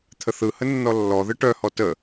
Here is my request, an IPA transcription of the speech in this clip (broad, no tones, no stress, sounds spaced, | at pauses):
t̪ʰ ə θ ɯ h ə nː ɔ lː ɔ ð ɯ ʈ œ h ɔ t ə